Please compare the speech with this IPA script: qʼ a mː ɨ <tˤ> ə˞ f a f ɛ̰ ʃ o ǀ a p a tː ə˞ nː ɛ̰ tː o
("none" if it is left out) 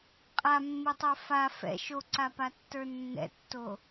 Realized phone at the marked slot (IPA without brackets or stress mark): tˤ